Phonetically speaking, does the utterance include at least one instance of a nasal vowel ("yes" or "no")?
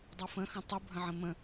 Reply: yes